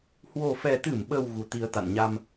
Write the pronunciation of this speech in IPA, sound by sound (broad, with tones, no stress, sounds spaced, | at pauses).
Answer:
h w o˨˩ f ɛ˨˩ t̪ ɨ˧˩ m ɓ ə˨˩ w ɣ u˨˩ t̪ i˧ ə̯ t̪ a̰˧˨ n ɲ a˧ m